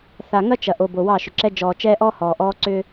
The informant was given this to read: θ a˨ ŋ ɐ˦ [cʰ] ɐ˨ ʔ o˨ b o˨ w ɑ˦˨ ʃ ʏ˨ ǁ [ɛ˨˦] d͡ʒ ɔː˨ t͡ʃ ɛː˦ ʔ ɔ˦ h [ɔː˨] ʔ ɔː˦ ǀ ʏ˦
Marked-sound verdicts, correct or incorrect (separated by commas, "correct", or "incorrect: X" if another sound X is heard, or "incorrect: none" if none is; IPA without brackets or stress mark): incorrect: t͡ʃ, incorrect: ɛ˦, correct